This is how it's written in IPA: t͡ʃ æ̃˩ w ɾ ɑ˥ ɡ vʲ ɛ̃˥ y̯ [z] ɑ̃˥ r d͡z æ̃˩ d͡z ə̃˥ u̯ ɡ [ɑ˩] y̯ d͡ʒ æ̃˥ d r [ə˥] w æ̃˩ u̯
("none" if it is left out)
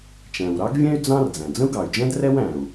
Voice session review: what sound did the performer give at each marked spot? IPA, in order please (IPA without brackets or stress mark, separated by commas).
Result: d͡z, ɑ˩, ɛ˥